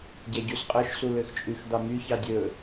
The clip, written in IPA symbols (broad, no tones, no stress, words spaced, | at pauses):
ɟæɟusqʼœʃ suløxt͡ʃʼʉx d̪ɑmy çɑdʲɵ